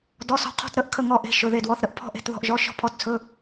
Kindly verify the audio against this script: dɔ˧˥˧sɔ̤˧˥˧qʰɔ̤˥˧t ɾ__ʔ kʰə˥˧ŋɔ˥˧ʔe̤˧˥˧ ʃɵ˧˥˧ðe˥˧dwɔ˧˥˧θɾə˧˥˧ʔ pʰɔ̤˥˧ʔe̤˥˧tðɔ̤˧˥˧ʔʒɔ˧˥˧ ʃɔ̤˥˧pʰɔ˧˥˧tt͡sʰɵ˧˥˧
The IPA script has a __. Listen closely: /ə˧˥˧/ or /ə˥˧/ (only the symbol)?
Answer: ə˥˧